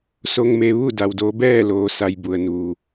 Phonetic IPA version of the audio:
s o˧ ŋ m e˧ ʋ u˥˨ d a˧ w d oː˧˥ b ɛː˥˨ l oː˧ s a˧ j b u˩ ə̯ n u˩

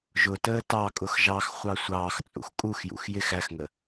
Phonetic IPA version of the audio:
ʒ ʊ t əː t ɑ kʼ ʊ x ʒ ɑ x χʷ ɑ sʷ ɑː x t͡sʼ ṵ x kʼ u x j ṵ x j ɪ x æ x ŋ ə

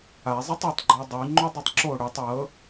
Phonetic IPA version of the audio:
a zˤ i tˤ ə tˤ ɡ͡ǃ ɔ dˤ y ŋ͡ǃ o dˤ ʉ tˤ ǁ o ɽ ʉ tˤ w ɤ

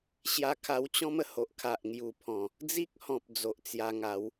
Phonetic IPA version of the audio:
ɕ j a˧ kʰ a˧ w t͡ɕ ɔ̃˦ m ə˨˩ h o˨ ʔ kʰ a˨ ʔ ŋ j u˨˩ pʰ ɔ̃˨˩ | d͡z i˦ k̚ h ɔ̃˨ p̚ d͡z o˨ ʔ t͡s j a˧ ŋ a˨˦ w

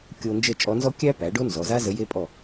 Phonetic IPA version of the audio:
kʲ o˧ n d͡ʒ ə˥˨ t͡ʃʼ ɔ˧˥ n z ɔ˥ kʲ æ˥ p æ˩˥ ɖ o˥ n z ɔ˩˧˩ z a˥ z ə˧˥ j e˥ pʼ ɔ˥˨

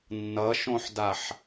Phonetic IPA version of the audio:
nː ʌ ʃ õ ħ d a ħ

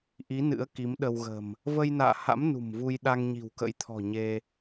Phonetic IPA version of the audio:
ʔ i˨˦ n ɨ̰˧˥ ə̯ k i˨˦ m ɗ ə˧ w ɣ ə̤˨˩ m | v ə˧ j n a̰ː˧˨ h a̰˧˥ m n ṳ˨˩ m v u˧ j ɗ a˧ ŋ ɲ i̤˨˩ w k ə̰˧˥ j t̪ʰ ɔ̤˨˩ ɲ e˧

